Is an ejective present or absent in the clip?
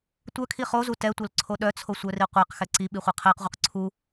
absent